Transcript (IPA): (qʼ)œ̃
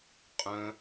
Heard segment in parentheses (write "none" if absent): qʼ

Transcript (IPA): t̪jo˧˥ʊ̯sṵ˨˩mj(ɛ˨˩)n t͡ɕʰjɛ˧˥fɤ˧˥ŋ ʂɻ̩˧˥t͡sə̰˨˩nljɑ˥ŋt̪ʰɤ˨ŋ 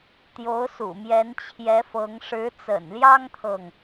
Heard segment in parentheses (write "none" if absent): ɛ˧˥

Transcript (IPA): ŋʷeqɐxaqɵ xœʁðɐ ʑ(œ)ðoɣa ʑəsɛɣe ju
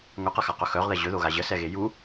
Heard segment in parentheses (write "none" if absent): ɵ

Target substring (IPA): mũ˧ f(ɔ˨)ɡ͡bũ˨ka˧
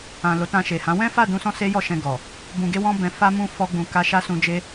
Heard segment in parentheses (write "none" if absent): ɔ˧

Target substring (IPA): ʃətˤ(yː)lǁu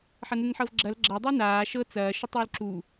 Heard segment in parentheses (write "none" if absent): yː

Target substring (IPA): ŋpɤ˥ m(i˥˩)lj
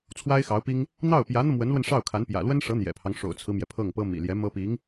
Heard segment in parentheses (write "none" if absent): ḭ˨˩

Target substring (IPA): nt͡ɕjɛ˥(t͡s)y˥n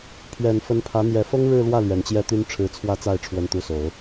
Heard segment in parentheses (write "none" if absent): t̪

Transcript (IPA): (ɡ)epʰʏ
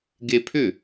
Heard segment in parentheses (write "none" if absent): ɡ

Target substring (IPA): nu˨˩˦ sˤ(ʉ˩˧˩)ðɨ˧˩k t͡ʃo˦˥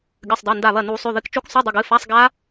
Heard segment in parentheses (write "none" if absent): ʉ˩˧˩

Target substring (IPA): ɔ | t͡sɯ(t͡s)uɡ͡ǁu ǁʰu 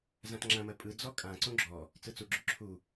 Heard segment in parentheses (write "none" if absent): t͡s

